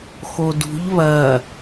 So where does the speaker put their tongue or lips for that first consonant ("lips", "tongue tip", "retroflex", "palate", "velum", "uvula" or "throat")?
velum